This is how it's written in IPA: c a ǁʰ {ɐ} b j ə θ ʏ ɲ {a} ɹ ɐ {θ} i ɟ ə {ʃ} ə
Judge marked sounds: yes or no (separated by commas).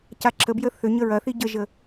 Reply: no, no, yes, no